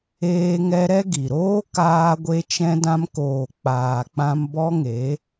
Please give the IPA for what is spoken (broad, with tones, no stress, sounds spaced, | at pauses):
eː˧ ŋ ɛ˧ ɾ ɛ˦ ɡ i˨ ɾ oː˦ k aː˧ ɡʷ e˧ t͡ʃ ɛ̃˧ d ã˧ m k oː˨ k͡p aː˨ k͡p ã˧ m b ɔ˦ ŋ e˨˦